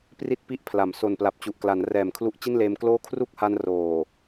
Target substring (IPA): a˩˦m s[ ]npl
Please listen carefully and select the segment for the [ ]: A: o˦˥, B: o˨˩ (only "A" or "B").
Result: B